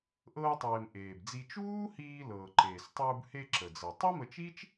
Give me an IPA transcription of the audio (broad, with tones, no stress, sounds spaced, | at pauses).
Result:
ʔ ɤː˧ tˤ eː˩ m ʔ eː˩ b d͡z i˧ t͡ʃ uː˥ h iː˧ l ɤː˩ ǃ eː˩ s tˤ uː˧ b h e˧ ǁ ə˩ d͡z ɤ˩ tˤ ɤ˥ m ə˧ t͡ʃ i˥ t͡ʃ